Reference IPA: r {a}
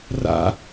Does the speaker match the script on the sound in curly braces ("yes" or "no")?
no